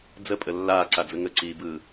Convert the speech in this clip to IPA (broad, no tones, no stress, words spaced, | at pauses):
d͡zəpʼə lːaːǀad͡zə ŋəǀiːbɯː